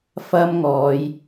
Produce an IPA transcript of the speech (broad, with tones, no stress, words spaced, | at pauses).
fɐ˥mŋɔː˨˧j